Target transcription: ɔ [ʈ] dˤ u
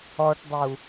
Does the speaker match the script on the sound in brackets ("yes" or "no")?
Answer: yes